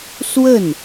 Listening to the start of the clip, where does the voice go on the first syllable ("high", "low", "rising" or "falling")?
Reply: falling